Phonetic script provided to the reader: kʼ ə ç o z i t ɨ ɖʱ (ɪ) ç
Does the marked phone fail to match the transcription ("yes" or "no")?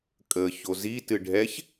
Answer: yes